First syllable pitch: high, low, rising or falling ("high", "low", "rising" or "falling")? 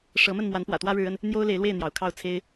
rising